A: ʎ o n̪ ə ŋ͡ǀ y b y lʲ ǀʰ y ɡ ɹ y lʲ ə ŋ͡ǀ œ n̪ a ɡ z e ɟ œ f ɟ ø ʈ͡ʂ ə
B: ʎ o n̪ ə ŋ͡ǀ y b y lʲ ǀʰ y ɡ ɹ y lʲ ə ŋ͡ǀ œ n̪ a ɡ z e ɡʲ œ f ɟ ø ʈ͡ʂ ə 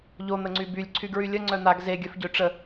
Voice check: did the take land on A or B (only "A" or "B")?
B